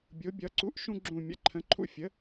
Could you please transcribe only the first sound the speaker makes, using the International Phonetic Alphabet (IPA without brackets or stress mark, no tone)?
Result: bʲ